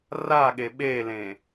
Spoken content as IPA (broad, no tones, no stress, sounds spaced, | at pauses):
r a ɠ e ɓ e l ẽ